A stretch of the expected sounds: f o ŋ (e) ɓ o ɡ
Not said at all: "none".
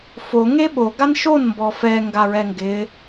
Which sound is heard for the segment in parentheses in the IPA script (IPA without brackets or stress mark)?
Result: e